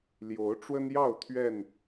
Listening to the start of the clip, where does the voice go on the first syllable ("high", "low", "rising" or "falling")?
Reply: rising